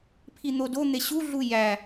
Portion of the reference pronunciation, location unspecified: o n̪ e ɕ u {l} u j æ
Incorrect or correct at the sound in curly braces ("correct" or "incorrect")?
incorrect